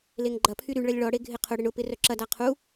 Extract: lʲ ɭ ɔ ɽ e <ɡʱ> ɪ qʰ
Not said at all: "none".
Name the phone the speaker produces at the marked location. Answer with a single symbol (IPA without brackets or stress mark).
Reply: ɡʱ